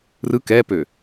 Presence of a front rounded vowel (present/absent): present